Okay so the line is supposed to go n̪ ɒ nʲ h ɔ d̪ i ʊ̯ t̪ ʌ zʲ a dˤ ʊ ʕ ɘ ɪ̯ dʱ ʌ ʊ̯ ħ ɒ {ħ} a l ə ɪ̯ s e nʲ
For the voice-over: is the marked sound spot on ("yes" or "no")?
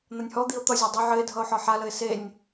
yes